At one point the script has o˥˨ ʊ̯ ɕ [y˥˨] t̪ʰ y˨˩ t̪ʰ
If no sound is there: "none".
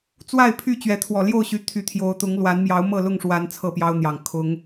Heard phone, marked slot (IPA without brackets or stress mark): y˨˦